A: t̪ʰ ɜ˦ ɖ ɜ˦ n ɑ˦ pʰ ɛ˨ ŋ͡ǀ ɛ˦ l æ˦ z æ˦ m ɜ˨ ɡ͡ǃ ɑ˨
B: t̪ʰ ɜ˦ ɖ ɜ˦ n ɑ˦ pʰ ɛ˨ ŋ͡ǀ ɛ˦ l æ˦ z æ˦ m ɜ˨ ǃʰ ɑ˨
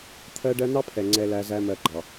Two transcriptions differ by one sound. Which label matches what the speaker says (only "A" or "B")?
A